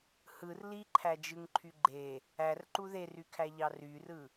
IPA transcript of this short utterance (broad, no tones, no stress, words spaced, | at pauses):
hɯr liǃʰæd͡ʒɯŋǃʰy ɡ͡ǃe | ærǃu ðerykʰæʎɑ ryrɯ